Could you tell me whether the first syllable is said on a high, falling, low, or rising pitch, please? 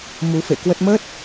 rising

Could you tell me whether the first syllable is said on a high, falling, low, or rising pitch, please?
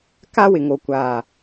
high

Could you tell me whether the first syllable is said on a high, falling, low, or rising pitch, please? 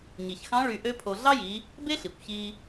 low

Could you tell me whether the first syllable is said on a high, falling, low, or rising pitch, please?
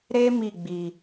high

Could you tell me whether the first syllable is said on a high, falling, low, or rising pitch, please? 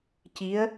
rising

